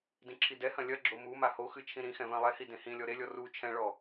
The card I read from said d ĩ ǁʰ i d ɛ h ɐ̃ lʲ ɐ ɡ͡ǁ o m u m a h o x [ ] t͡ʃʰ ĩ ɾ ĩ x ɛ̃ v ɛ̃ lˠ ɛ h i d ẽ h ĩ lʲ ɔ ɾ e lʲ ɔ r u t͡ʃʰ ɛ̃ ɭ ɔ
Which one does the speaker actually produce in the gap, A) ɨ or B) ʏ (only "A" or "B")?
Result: A